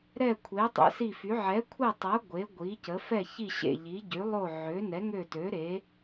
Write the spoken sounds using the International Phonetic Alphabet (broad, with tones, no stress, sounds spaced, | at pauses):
ɾ ɛ˦˨ kʷʰ e˨˥ tˤ ɛ̰˨˥ s i˦˨ f y˨˥ ʕ ɛ˨˥ kʷʰ ɛ˦˨ tˤ a˨˥ ɡʷ e˨˥ ɡʷ i˨˥ c ə˨˥ f ɛ˦˨ ç i˦˨ ɕ ḛ˦˨ ʎ i˨˥ ɟ y˨˥ lˠ o˦˨ ʕ ø˨˥ n ɛ˨˥ ŋ ø˦˨ t ø˨˥ ɾ e˨˥